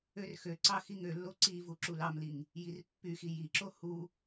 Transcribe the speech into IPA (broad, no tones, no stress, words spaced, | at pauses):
ørxøǀɑ xiŋølːo ǀivu ǁulɑmliŋ | jirpːyxi jiǁo hu